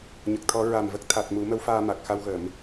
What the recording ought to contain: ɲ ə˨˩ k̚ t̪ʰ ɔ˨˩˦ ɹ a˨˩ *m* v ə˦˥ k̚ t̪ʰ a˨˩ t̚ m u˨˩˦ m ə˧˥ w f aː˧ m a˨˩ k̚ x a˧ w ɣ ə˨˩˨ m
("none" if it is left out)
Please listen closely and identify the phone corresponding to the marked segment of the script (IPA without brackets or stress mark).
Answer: m